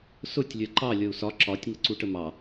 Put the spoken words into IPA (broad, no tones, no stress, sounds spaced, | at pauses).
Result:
s ʊ tʲ lʲ ɜ ǃ ɑ lʲ ʌ u̯ s ɒ ǁ ɒ tʲ ŋ ə ǀ u ʈ ə m ɑ